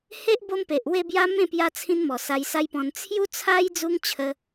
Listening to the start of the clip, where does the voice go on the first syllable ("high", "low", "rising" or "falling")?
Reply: high